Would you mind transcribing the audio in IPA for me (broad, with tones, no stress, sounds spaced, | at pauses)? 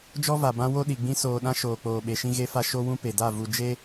d͡ʒ ɔ˦ v a˨ b ã˦ w o˦ ɗ i˨ ɡ͡b ĩ˦ s oː˨ ɗ ã˦ ʃ oː˨ k͡p oː˨ ɓ e˨ ʃ ĩ˦ ɣ e˦ f a˦ ʃ o˦ w ũ˦ p e˨ d a˦˨ v u˨ d͡ʒ e˦